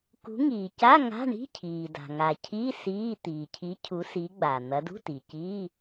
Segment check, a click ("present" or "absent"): absent